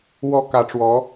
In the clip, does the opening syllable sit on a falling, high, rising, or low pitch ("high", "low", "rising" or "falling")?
rising